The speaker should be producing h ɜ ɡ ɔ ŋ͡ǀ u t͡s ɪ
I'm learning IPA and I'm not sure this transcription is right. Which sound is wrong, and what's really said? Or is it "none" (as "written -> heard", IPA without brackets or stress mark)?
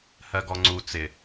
none